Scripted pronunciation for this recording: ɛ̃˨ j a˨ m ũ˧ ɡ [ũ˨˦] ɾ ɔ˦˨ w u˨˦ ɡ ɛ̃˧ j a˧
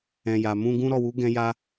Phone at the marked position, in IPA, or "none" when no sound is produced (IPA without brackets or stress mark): ũ˦